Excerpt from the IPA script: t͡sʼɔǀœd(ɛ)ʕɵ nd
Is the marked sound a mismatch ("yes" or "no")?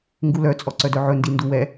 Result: yes